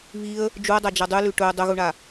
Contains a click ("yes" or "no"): no